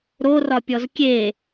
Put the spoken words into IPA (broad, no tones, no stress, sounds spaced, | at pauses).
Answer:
ɾ o r ɒ pʲ ɔ z kʲ e